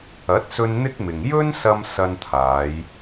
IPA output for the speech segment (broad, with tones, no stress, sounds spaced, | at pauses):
ɐ˨˥ t̚ s ɵ˧ n n̪ ɪ˥ k̚ m ɪ˨ ŋ j ɵ˥ n s ɐ˧ m s ɐ˧ n t̪ʰ aː˨˧ j